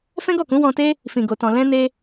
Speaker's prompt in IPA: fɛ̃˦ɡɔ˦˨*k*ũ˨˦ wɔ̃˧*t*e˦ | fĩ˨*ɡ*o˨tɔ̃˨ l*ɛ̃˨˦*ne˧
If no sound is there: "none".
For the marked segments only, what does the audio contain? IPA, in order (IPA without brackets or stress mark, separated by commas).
k, t, ɡ, ɛ̃˧